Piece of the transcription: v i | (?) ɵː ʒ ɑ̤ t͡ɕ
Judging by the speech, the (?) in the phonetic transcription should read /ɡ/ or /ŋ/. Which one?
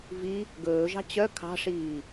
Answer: ɡ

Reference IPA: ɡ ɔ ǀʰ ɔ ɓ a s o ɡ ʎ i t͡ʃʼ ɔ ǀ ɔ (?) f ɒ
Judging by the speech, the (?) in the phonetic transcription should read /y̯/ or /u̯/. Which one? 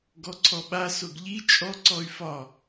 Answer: y̯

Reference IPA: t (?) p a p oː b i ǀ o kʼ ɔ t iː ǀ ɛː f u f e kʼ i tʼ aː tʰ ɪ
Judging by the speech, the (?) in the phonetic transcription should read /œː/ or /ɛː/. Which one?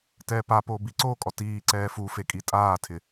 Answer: ɛː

